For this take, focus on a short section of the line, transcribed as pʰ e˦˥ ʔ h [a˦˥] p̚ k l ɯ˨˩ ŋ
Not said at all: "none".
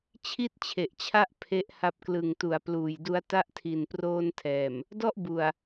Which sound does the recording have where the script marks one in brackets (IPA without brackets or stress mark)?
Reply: a˦˥